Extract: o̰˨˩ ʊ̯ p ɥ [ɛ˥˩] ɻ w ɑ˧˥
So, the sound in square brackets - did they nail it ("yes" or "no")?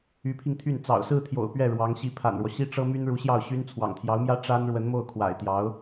yes